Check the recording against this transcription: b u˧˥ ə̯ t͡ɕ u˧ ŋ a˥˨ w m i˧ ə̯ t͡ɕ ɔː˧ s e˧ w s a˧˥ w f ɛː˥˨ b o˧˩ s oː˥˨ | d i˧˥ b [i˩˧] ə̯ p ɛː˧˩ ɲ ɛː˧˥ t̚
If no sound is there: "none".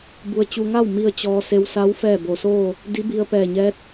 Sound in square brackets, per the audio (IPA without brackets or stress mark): i˧